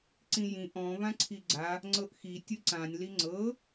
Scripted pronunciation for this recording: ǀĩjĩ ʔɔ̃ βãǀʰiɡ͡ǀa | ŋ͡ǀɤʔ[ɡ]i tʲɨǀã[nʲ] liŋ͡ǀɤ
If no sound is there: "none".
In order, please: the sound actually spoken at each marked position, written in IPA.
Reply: x, nʲ

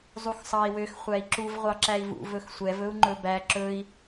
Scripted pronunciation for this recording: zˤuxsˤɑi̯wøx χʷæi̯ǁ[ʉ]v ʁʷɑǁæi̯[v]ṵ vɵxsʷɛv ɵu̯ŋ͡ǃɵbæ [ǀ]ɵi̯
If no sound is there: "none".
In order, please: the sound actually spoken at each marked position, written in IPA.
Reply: u, v, ǁ

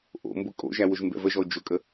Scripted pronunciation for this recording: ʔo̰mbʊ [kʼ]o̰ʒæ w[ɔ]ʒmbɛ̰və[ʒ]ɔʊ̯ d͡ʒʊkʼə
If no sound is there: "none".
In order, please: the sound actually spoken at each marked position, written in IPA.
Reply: kʼ, ʊ, ʒ

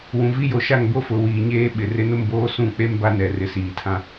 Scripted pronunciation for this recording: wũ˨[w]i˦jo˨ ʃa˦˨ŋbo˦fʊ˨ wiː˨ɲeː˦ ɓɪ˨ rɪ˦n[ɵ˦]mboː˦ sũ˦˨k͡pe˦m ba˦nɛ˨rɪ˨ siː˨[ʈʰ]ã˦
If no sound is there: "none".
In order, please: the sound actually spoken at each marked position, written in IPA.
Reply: v, ʊ˦, tʰ

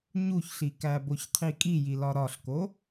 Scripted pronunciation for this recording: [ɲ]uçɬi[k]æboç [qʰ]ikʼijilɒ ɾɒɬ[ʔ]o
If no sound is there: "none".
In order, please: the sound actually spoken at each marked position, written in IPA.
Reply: ɲ, k, qʰ, k

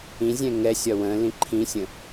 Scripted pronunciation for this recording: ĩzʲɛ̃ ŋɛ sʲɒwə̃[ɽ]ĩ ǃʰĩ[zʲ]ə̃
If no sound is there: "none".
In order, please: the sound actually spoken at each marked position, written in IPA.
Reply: l, sʲ

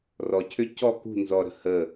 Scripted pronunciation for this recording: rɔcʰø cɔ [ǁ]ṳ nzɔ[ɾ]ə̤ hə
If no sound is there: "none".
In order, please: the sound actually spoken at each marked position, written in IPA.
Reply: k, ɾ

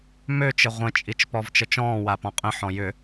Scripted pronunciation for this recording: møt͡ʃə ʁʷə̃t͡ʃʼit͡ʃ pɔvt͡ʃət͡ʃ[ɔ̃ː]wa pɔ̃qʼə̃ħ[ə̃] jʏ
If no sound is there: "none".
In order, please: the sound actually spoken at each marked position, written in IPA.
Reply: ɔ̃ː, ɔ̃

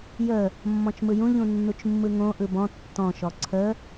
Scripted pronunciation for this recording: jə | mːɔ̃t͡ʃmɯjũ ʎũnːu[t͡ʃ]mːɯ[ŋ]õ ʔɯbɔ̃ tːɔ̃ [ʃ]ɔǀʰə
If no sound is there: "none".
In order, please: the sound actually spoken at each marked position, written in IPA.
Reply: t͡ʃ, ŋ, ʃ

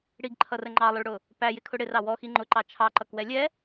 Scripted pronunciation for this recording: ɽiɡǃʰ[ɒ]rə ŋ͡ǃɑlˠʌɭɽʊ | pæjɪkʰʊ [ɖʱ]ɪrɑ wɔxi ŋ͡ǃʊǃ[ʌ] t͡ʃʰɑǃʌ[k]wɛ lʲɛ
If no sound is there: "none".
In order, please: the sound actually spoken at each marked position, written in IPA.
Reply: ʌ, ɽ, ɑ, k

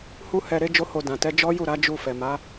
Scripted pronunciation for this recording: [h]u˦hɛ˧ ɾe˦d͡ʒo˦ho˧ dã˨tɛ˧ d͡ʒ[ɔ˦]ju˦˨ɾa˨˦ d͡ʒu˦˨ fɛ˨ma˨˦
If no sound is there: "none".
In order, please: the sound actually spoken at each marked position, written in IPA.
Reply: h, ɔ˦

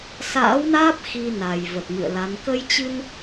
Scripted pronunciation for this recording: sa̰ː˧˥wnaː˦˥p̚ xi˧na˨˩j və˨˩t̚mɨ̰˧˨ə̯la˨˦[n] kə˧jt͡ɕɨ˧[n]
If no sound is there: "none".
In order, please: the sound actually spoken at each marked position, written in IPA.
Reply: n, n

